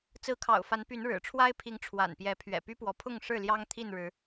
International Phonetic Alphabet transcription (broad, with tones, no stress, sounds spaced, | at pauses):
t͡s ɹ̩˨˦ kʰ ɑ̰˨˩ ʊ̯ f a˨˦ n p y˨˦ n ɻ ɻ̩˨˩ ʈ͡ʂʰ w a˦ ɪ̯ pʰ i˨˦ ŋ ʈ͡ʂʰ w a̰˨˩ n p j ɛ˨˦ pʰ ɥ ɛ̰˨˩ p y˦ p w ɔ˨˦ pʰ ʊ˥˨ ŋ ʂ ɻ̩˥˨ l j ɑ˦ ŋ t̪ʰ i˥˨ n ɻ ɻ̩˨˦